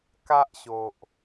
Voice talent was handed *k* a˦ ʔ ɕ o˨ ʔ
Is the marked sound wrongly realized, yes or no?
no